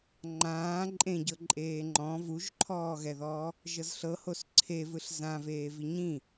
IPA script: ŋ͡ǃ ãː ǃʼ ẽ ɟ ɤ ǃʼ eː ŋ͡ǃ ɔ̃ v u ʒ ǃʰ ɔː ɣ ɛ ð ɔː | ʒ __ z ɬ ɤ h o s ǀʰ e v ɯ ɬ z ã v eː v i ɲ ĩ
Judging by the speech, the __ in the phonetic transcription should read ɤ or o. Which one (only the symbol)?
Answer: ɤ